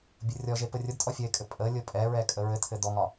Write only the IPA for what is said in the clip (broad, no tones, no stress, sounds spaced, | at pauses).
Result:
bʲ ʊ rʲ ɔ ʒ e p ə rʲ ʊ d tʼ ɔ fʲ ə ɪ̯ kʼ ɘ pʼ ə lʲ ʊ pʼ ɛ ɹ ɛ kʼ ə ɹ ɘ tʰ ɘ d ɔ ŋ ɒ